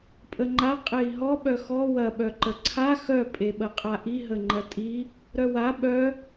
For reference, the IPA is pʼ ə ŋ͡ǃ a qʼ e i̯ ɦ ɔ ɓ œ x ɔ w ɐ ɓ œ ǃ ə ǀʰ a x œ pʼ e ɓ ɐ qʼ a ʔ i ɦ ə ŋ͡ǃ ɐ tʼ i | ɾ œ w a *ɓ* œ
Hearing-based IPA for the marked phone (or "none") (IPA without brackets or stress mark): ɓ